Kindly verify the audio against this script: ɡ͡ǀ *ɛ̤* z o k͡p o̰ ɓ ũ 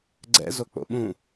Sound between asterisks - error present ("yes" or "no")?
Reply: yes